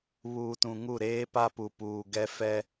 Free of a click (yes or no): yes